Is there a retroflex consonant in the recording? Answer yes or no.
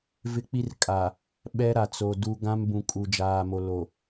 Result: no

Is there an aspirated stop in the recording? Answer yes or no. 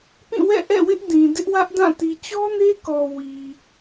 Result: no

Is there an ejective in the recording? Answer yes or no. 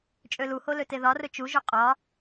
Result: yes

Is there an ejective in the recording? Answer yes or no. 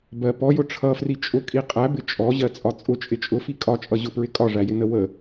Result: yes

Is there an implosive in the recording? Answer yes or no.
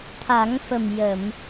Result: no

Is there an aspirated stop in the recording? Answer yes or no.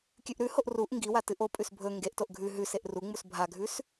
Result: no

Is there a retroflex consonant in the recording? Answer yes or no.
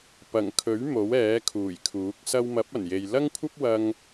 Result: no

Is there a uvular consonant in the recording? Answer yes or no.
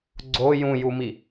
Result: no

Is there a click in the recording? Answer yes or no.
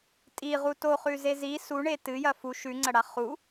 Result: yes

